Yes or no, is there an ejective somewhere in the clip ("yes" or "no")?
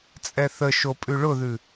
yes